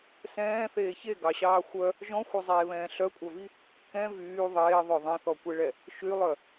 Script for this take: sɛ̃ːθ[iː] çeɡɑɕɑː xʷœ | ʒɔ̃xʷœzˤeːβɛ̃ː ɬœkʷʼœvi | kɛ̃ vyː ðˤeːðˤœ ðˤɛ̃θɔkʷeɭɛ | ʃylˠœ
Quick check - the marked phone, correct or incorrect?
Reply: incorrect